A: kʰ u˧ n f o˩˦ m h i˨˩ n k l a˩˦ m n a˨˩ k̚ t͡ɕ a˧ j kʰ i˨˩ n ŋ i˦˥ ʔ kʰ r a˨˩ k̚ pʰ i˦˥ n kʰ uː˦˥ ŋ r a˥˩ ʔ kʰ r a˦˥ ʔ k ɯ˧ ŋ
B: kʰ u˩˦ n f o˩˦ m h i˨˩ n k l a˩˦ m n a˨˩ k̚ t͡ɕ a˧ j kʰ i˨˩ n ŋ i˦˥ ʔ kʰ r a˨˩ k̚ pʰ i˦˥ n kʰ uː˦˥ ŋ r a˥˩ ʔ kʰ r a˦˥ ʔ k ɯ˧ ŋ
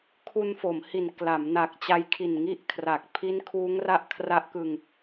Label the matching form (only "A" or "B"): A